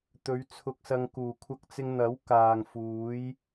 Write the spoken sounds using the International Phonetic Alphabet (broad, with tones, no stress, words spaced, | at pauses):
t̪ɵ˨˧ɥt͡sʰʊ˧k̚sɐ˧ŋ kuː˨˩kʷʰɐ˧k̚t͡sɪ˧ŋn̪ɐ˨˥w kaː˨ŋfuː˨˥j